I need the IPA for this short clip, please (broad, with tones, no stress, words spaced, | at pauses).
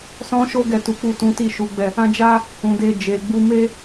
sɔ̃˧ ʃo˦ɡɛ˦˨tu˨˦ k͡pu˦˨tũ˨˦ ti˦˨ʃu˨˦ɡ͡bɛ˦˨ | ã˦ d͡ʒa˦ | ũ˨de˧ d͡ʒe˨ɡ͡bu˧ me˦